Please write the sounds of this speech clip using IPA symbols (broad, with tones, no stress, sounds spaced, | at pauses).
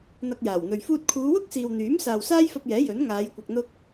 n̪ ɐ˧ k̚ j aː˨˩ w n̪ ɵ˨ ɥ f uː˧ t̚ kʰ uː˨˧ w ʊ˥ k̚ s iː˨ w n̪ yː˨˥ m s aː˨ w s aː˥ j f ɐ˧ p̚ j ɛː˨˥ j ɵ˨˥ n ŋ aː˨˧ j kʷ ɐ˨ k̚ n̪ ʊ˧ k̚